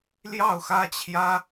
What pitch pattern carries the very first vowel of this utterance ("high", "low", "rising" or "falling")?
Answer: falling